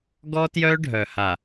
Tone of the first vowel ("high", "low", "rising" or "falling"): high